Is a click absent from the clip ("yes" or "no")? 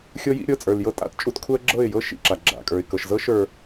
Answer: no